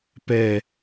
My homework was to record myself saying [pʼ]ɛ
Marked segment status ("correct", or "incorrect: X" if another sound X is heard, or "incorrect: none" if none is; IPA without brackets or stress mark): incorrect: p